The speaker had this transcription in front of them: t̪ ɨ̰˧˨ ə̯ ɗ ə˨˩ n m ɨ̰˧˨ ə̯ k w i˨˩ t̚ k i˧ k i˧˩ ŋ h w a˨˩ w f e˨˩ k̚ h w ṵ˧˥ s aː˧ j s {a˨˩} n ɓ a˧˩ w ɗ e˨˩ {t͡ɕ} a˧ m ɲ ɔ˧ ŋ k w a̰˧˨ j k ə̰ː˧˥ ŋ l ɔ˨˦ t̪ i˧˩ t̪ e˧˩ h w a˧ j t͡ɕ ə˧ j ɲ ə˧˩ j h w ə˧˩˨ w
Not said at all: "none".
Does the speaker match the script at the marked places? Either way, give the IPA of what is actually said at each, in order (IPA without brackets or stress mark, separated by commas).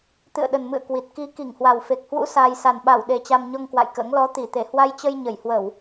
a˨˩, t͡ɕ